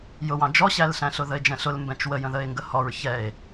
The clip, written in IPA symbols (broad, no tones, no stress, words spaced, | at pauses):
jʊwɑ̃ d͡ʒɔɕælɬæ̃ɬʊ ðəe̯d͡ʒɛ̃ɬʊl mbɛ̃t͡ʃwəjə̃ ðəe̯ŋɡəhɔɹ çɛe̯